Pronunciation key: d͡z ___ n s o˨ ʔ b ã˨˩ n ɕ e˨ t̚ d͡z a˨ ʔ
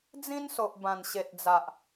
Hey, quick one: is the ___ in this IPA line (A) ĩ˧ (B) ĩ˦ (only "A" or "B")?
B